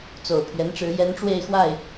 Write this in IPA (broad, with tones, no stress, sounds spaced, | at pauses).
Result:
t͡s o˨˩ ʊ̯ pʰ ɥ ɛ˧˥ n ʈ͡ʂ ɻ̩˧˥ j ɛ˧˥ n ʈ͡ʂ w e˥˧ ɪ̯ x w a˥˩ ɪ̯